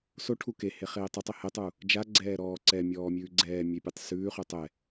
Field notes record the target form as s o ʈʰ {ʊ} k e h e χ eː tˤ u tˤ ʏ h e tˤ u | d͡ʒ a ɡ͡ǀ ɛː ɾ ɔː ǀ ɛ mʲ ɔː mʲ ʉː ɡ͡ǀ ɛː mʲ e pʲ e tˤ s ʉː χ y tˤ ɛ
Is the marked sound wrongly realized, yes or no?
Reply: yes